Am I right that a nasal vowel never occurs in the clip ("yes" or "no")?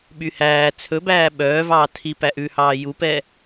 yes